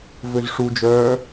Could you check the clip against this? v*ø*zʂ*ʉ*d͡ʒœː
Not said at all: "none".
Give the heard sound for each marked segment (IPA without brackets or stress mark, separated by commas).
ø, u